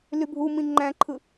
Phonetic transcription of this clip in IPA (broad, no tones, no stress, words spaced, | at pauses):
lybʱumĩ ŋ͡ǃæ̃ǃʰɯ